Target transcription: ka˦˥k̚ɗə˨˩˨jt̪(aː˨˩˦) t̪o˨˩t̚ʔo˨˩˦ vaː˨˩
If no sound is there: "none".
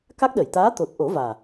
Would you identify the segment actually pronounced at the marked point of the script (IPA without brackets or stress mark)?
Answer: aː˧˥